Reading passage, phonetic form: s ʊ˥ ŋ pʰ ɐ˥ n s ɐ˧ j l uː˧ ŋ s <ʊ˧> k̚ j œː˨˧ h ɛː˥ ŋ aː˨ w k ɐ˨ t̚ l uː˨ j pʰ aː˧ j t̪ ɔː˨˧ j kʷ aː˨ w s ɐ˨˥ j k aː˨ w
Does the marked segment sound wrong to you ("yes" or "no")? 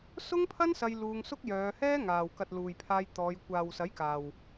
yes